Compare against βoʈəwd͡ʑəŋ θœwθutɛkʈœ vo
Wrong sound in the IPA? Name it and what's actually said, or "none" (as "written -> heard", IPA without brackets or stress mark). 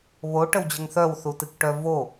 ɛ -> ɨ